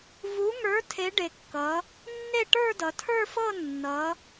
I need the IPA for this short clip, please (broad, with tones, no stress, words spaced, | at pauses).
vu˨˥ŋə˞˨˥ tʰe˨˥ɖe˩˧kːʌ˩˧ | nːe˥˧ʈə˞˥˧dʌ˩˧ tʰə˞˥˧fɤ˥˧nːʌ˩˧